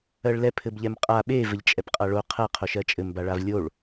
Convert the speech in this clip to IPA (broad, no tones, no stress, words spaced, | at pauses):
ɜɭlɛpʰɘb ʎɛmqʼa ɓe vɘʎt͡ʃʼɛpqʼaɭo qʰɜqʰo ʃɜt͡ʃʼɘmbaɭav lʲoɭ